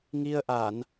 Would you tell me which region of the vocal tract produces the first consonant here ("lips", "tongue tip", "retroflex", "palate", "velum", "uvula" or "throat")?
velum